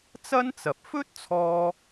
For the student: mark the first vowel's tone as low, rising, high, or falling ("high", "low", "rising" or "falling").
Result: high